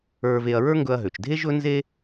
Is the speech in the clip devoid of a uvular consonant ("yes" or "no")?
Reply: yes